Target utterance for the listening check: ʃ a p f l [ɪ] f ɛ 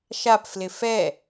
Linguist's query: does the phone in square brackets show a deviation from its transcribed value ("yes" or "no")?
no